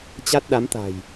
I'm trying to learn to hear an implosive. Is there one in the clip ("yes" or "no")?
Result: yes